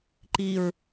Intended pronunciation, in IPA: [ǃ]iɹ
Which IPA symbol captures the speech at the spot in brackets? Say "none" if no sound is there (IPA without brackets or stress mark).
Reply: ǃ